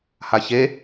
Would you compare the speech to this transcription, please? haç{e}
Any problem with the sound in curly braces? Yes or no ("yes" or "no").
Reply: no